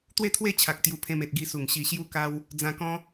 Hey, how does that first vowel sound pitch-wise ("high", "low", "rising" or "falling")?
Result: falling